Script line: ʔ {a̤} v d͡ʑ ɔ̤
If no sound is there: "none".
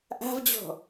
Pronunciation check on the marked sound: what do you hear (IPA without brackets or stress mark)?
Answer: a̤